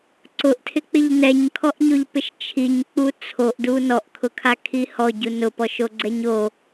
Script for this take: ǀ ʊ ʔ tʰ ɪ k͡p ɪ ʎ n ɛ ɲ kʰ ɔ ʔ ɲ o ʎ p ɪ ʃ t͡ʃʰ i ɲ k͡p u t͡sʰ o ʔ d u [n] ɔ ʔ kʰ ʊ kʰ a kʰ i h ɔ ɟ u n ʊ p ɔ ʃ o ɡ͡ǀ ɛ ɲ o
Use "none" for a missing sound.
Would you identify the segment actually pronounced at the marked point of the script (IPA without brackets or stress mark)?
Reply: n